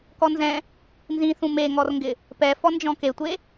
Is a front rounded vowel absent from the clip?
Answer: yes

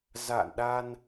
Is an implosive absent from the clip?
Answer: no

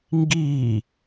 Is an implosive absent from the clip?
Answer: yes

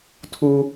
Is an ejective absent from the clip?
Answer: yes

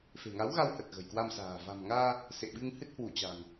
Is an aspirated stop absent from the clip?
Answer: yes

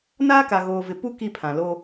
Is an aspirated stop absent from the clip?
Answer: no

